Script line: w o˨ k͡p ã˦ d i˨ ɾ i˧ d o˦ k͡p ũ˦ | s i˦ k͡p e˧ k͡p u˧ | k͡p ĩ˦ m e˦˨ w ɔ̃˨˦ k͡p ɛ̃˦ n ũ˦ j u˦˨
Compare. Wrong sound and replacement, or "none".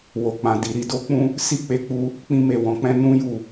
ã˦ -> ã˨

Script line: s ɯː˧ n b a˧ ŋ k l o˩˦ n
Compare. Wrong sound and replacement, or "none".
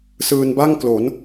a˧ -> a˥˩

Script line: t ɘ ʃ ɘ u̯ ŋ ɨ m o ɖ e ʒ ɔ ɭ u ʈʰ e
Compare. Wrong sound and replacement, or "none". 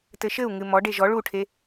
o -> ɔ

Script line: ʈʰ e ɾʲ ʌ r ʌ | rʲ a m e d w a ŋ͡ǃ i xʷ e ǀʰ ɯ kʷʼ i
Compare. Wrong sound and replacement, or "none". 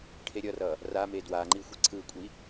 rʲ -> r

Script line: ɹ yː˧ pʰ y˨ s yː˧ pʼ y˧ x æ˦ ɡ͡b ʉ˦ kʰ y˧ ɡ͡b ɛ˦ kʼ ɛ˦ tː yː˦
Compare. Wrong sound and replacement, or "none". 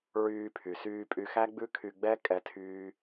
tː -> tʰ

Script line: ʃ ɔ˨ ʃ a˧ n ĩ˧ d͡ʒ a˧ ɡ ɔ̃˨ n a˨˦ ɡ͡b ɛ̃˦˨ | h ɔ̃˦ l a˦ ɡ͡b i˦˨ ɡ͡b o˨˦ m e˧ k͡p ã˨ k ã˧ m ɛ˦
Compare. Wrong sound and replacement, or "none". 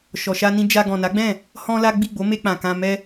none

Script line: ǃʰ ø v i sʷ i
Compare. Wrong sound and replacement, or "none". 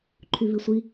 ø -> y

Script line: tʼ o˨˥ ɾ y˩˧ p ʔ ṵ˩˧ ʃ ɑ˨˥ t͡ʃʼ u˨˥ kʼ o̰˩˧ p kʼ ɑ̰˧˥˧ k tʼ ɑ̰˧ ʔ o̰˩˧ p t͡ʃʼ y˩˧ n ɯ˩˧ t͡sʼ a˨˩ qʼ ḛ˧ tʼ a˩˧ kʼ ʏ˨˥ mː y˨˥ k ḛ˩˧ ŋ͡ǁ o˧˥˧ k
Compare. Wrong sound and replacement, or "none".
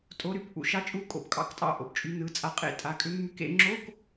none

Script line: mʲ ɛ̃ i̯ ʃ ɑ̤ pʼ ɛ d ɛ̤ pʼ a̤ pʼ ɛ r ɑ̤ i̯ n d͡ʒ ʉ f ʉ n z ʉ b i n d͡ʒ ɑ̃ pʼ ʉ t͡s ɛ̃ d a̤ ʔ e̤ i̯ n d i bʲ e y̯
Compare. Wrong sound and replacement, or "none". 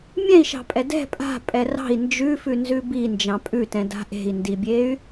t͡s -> t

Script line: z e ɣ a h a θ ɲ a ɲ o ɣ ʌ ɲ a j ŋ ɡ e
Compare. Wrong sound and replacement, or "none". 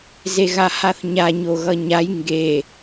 none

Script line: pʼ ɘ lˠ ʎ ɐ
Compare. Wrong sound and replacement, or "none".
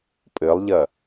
none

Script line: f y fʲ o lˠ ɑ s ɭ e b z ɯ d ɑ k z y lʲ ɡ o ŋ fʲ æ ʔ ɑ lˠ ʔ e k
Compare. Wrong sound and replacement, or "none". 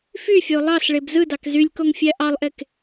ɡ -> k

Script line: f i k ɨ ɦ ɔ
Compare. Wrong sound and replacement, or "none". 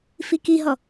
ɨ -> i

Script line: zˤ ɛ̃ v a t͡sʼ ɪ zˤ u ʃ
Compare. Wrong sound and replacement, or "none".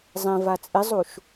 none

